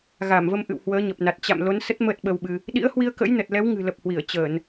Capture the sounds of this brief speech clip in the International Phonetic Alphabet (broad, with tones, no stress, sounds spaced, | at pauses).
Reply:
ɣ a˧˩ m v ə˧ m ʔ ɨ̰˧˨ w h w əː˨˦ ɲ ə˨˩ p̚ n a˨˩ t̚ t͡ɕ a̰˧˨ m l o˨˦ n s ə˦˥ t̚ m əː˦˥ t̚ ɓ ə˧ w ɓ ɨ˧ | ɗ ḭ˧˥ ə̯ h w i˧ ə̯ k ə̰˧˥ j n ə˨˩ t̚ l ɛ˨˦ w ŋ ɨ̤˨˩ l ə˨˩ p̚ h w i˧˩ ə̯ t͡ɕ əː˧˩˨ n